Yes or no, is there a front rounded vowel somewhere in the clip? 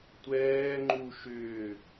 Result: yes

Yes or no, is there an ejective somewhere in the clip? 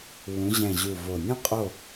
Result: yes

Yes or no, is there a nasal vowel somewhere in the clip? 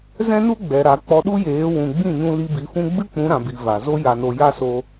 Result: yes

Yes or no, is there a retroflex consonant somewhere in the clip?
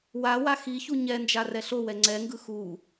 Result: no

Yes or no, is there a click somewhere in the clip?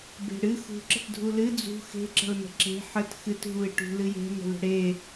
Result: yes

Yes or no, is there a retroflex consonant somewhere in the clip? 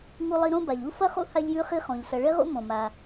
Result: yes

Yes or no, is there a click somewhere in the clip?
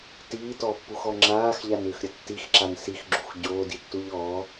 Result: yes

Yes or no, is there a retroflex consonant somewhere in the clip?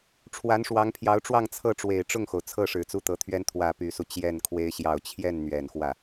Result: yes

